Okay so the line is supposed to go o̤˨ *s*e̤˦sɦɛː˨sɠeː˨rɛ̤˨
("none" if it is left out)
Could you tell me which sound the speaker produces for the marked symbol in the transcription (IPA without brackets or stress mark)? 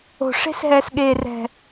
ʂ